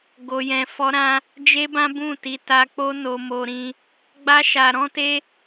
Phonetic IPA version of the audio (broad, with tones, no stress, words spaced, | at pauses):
ɡo˧jɛ̃˧ fɔ˦ɾã˦ | d͡ʒe˦bã˦bũ˦˨ti˧ ta˧k͡po˦ no˧mo˧ɾĩ˧ | ɡ͡ba˦ʃa˧ɾɔ̃˦te˦